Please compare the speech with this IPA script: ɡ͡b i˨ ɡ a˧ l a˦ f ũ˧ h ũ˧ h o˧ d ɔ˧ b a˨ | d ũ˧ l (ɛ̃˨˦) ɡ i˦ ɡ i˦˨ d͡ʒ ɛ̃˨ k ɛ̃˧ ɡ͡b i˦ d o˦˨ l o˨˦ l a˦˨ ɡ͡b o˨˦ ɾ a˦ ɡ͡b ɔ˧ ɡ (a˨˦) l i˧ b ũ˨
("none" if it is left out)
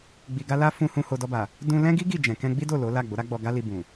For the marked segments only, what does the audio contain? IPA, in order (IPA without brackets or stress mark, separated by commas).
ɛ̃˦, a˦